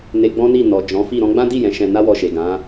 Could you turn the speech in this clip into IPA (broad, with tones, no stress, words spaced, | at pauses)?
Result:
ne˧ɡ͡bɔ̃˦ni˦˨ nɔ˨ d͡ʒɔ̃˨˦fi˦˨ ɾɔ̃˧ɡ͡bã˦di˦˨ jɛ̃˨˦ʃɛ̃˧ na˦wɔ˧ʃe˨ ɡã˨˦